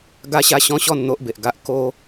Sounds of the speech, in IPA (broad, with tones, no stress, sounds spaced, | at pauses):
ɡ a˦ ɕ a˦ ɕ ɔ̃˦ ɕ ɔ˥˧ n n̪ o˦ ʔ b e˨ ʔ ɡ a˦ ʔ k o˦